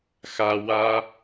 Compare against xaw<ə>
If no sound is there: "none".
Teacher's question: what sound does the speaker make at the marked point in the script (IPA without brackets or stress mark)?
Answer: a